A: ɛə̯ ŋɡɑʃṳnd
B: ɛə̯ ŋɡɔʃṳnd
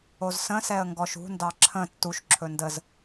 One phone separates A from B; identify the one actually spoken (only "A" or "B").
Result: B